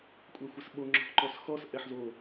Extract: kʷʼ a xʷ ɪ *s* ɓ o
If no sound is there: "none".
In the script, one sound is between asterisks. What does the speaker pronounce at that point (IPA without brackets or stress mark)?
s